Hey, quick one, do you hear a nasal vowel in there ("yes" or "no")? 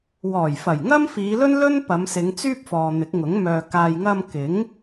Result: no